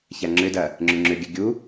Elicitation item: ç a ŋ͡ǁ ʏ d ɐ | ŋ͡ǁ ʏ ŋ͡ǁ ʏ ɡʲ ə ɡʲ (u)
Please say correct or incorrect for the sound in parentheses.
correct